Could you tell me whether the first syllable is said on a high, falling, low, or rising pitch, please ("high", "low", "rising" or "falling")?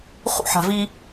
high